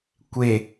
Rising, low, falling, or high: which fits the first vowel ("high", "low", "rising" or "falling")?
low